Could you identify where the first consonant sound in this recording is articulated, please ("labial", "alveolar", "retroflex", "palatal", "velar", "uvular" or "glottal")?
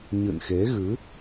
palatal